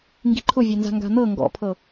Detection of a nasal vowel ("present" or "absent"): absent